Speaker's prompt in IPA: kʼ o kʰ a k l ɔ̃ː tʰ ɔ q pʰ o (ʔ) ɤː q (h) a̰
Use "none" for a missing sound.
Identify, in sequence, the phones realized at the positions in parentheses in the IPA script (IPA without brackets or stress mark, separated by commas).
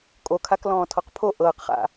ʔ, χ